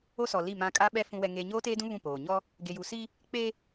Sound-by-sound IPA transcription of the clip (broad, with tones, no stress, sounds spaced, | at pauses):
o˦ s ɔ˨ l i˦˨ m ã˦ kʼ a˦ ɓ ɛ˦ f ũ˦ w ɛ˦ ŋ eː˦ ɲ oː˦ t eː˦ d ũ˦ β ũ˦˨ p oː˨ ɲ ɔ˦ | ɡ e˨ j u˨ s i˦ | k͡p e˦